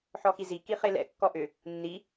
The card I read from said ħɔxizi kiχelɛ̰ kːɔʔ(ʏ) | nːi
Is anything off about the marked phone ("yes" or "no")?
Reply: no